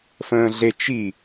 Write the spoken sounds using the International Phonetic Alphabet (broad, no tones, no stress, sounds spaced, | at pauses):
f ə̃ː ɮ e t͡ʃ i